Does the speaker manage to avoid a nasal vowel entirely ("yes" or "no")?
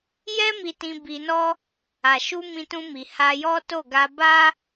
no